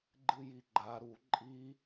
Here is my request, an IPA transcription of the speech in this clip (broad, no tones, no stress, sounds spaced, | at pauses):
ɡ͡ǃ ɨ j i ɡ͡ǃ a ɾ u ǃʼ i